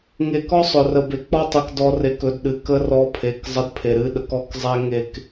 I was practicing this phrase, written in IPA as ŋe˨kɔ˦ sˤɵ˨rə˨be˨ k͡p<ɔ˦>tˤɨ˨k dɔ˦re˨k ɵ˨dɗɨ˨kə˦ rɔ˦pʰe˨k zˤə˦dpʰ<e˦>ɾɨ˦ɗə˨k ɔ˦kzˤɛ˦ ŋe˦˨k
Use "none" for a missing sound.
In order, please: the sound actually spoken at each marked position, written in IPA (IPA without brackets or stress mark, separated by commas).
ɔ˦, e˨